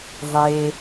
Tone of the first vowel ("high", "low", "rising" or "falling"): low